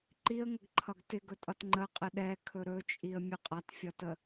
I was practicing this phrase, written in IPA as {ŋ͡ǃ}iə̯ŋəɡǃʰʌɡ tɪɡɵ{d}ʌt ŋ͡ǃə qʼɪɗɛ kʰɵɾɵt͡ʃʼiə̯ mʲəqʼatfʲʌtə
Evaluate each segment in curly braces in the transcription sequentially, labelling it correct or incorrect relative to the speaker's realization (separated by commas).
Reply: incorrect, incorrect